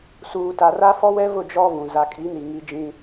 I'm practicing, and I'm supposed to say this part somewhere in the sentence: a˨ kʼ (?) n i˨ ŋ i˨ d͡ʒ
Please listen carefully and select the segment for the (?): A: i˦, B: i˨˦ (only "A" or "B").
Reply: B